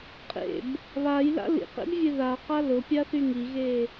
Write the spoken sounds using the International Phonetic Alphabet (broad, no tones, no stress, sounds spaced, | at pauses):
qʼ ḛ b | β a j l a̰ l ḭ q ḛ b vʲ e ð a q a l ʊ pʲ a θ y ŋ i ɣ e